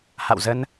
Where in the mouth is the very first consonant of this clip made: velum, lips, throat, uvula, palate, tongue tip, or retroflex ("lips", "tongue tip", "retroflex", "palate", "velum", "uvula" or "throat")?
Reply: throat